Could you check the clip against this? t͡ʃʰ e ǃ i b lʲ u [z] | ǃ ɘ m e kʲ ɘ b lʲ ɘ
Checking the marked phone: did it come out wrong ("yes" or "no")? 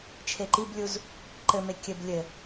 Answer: no